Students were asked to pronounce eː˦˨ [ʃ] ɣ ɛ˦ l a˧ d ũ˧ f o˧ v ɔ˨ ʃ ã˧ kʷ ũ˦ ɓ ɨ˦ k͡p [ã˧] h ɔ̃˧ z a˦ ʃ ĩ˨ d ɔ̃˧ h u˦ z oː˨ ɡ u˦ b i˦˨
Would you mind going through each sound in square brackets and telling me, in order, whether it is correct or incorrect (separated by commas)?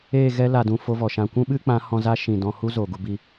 incorrect, incorrect